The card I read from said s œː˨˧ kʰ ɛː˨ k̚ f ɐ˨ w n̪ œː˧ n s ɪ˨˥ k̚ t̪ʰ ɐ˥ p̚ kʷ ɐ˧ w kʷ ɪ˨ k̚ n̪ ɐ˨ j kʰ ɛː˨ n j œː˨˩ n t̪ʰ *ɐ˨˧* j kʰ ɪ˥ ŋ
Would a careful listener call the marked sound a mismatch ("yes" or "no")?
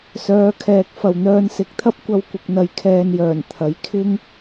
no